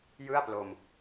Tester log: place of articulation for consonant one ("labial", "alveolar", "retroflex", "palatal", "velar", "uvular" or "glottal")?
palatal